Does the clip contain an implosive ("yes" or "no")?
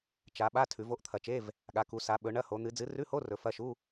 yes